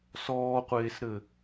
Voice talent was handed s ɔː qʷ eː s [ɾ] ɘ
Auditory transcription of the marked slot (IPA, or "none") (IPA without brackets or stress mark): ɾ